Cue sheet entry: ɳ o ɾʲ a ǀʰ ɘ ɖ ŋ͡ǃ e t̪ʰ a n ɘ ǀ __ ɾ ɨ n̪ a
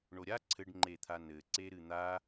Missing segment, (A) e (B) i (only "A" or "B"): A